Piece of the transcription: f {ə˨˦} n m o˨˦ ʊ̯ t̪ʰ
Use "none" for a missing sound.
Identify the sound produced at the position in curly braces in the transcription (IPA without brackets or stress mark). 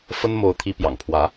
ə˦